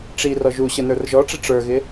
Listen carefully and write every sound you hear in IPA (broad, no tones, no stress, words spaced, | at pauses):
ʈ͡ʂi rɔʒuɕə nə˞rʒɔʈ͡ʂɪ ʈ͡ʂə˞ɣɪ